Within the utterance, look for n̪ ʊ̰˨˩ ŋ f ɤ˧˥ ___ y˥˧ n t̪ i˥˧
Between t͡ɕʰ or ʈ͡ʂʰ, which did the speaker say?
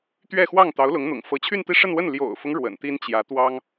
t͡ɕʰ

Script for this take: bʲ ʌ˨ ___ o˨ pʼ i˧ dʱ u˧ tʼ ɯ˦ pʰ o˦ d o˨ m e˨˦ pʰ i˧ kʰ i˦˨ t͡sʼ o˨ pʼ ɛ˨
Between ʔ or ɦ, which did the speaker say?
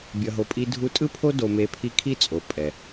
ɦ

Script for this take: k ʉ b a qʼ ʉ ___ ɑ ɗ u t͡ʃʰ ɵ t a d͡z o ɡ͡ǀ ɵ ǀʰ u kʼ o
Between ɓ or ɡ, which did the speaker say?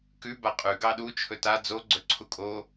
ɡ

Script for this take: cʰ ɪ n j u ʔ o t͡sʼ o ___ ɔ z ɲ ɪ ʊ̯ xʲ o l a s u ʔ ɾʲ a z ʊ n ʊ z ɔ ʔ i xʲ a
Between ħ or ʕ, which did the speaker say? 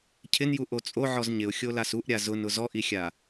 ʕ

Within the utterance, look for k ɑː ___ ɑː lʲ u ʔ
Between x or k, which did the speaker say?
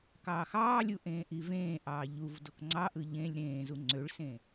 x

